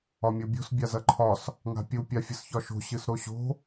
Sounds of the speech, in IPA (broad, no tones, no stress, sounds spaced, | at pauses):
ɒ mʲ o bʲ o̤ s bʲ a z ɐ ǃʰ ɒ s | ŋ a̤ pʲ u pʲ a fʲ ɨ s ç ɒ ʃ o̤ ɕ ɨ s ɾ o ɕ o̤